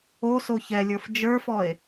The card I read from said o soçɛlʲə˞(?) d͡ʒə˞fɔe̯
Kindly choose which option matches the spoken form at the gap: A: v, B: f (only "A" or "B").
B